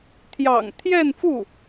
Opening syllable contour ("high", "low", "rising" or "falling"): low